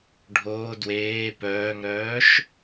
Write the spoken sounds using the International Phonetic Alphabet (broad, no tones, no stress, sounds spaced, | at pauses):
ɖʱ oː d w eː p œː ŋ ɾ œː ʃ